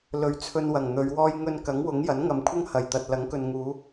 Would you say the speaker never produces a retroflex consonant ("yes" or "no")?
yes